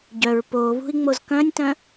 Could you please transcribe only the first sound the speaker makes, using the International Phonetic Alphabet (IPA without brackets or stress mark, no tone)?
ɟ